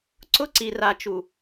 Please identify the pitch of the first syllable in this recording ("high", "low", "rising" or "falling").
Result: high